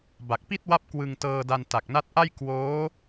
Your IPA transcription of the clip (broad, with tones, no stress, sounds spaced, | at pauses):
b a˨˩ k̚ p i˥˩ t̚ w a˦˥ p̚ k w ɯ˧ ŋ t ɤː˧ d a˧ n t a˨˩ k̚ n a˦˥ t̚ ʔ a˥˩ j k w oː˦˥